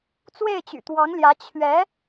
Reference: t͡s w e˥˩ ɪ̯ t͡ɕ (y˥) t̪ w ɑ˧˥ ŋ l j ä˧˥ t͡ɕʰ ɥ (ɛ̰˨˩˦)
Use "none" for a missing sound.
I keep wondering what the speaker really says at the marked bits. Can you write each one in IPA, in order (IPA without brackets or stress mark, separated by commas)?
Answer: y̰˨˩, ɛ˧˥